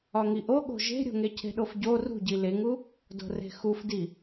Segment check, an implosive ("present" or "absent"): present